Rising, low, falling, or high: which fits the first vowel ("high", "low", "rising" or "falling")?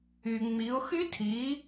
low